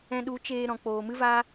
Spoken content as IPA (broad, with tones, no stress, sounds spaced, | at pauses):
ɛ̃˧ ɗ u˨˦ t͡ʃ eː˧ ɾ ɔ̃˨ k͡p oː˨ m ɨ˦ v a˦